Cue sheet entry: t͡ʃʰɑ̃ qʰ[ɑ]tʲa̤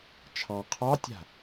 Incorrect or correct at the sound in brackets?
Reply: correct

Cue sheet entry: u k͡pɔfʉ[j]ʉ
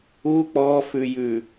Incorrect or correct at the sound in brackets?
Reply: correct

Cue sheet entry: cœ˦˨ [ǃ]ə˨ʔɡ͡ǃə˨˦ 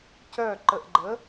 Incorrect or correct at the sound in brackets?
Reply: correct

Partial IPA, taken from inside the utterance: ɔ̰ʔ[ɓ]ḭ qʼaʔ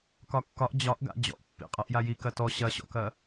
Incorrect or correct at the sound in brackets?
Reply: incorrect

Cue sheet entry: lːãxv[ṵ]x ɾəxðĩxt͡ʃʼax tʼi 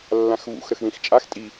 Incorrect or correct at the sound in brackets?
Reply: correct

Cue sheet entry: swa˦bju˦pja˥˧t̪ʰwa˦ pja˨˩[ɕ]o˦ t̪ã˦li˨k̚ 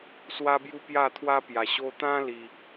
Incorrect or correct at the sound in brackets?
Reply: correct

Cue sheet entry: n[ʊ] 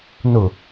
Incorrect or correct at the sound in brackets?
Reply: correct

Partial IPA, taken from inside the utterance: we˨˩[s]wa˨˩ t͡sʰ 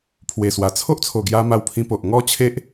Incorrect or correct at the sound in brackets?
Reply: correct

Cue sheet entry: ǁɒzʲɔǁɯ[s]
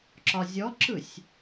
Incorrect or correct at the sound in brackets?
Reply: incorrect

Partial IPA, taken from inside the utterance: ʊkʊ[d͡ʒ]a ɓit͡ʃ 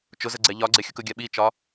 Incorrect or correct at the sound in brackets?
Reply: incorrect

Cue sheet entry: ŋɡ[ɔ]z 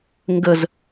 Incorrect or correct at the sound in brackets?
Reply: incorrect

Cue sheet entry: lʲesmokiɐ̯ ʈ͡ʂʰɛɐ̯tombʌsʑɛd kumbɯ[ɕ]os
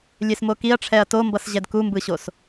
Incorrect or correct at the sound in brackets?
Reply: correct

